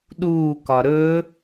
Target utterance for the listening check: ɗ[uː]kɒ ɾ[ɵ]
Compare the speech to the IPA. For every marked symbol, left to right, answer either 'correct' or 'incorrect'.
correct, correct

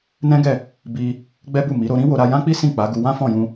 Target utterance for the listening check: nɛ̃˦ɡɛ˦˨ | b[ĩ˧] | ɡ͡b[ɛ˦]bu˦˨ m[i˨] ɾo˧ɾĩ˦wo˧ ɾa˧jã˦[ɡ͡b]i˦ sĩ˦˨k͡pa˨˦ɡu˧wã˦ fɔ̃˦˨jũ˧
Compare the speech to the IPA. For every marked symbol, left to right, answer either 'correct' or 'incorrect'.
incorrect: i˧, correct, incorrect: i˨˦, incorrect: k͡p

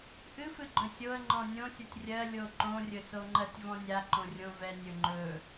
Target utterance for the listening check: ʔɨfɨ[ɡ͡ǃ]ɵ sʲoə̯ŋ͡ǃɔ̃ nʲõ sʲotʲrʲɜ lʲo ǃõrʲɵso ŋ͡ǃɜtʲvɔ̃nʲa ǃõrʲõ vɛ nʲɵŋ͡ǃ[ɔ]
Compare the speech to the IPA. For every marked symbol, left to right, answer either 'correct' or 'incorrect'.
correct, incorrect: ɵ

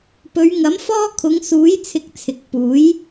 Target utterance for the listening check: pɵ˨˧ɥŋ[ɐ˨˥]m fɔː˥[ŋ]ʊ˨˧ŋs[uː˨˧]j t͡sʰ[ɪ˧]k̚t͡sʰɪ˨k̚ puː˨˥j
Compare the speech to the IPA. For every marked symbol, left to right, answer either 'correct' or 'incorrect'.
correct, incorrect: kʰ, incorrect: uː˨˥, correct

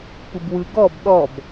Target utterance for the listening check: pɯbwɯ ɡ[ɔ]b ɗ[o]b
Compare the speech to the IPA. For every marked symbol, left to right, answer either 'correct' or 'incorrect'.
correct, incorrect: ɔ

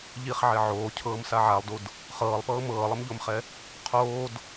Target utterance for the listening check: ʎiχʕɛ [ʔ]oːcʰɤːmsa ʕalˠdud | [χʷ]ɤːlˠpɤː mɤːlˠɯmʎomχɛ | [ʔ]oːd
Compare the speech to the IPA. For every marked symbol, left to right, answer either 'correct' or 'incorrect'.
incorrect: ʕ, incorrect: χ, incorrect: qʰ

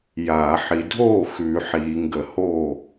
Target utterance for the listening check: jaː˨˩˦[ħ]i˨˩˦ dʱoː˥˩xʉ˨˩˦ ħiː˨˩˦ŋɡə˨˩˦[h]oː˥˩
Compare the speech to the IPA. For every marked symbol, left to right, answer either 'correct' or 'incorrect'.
correct, correct

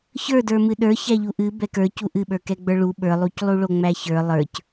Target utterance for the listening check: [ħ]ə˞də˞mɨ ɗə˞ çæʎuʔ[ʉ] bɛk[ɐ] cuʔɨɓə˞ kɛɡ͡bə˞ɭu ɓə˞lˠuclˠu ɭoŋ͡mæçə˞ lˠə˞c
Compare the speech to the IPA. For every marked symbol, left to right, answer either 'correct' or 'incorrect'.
incorrect: ç, incorrect: ɨ, incorrect: ə˞

